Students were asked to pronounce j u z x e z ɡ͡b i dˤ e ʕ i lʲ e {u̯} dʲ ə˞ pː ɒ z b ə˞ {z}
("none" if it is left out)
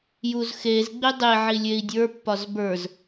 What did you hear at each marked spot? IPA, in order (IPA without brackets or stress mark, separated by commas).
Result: i̯, z